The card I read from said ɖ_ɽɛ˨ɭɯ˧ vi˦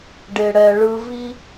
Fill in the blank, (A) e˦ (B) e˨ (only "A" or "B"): B